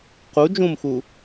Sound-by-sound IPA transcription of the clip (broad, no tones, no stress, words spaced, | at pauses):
qu d͡ʒũmxu